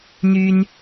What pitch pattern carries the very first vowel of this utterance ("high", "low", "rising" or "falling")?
high